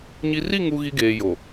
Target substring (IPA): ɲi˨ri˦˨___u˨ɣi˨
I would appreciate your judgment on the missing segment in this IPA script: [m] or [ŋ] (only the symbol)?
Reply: ŋ